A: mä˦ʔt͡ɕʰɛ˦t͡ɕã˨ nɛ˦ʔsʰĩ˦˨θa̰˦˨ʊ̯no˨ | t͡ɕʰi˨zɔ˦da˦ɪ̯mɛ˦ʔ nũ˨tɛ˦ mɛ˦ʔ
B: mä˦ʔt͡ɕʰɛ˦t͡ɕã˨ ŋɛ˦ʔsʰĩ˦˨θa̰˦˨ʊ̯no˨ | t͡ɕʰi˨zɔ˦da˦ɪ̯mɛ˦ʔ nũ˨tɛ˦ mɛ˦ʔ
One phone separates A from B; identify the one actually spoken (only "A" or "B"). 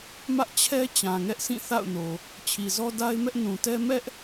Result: B